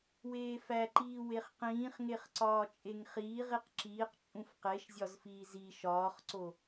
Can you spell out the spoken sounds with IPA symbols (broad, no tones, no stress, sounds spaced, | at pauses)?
w eː f æ ǃ iː w e χ q ĩː χ ŋ e χ ǀ ɒː t͡ʃʼ e ŋ χ iː ʁ i q ǁ iː q t͡ʃʼ ũ f q e ʃ zʲ ɒ z f iː z i ʃ ɒː χ ǀ o